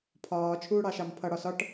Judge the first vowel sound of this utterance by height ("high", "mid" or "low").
low